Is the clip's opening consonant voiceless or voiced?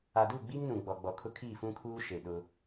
voiced